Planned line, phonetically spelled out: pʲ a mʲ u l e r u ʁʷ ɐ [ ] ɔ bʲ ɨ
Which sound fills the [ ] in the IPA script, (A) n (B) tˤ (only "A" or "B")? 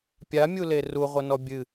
A